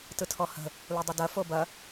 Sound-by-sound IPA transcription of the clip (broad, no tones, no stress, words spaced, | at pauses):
tɯtʰɔhə̤ | ludˤədɐ fobɐ